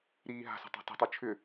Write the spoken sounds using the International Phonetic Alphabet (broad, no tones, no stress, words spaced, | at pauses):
ɾiːɦa̤sə̤ tˤa̤tə̤tˤʉ t͡ʃʰʏ